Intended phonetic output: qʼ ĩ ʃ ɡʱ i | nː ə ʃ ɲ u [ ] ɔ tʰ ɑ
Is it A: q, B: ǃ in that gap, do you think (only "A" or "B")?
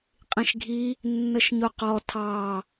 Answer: A